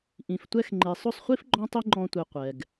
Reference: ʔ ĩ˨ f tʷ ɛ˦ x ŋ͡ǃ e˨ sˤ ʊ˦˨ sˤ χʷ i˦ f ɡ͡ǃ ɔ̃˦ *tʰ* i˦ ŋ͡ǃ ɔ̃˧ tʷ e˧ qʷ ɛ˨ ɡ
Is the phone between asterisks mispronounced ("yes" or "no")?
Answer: yes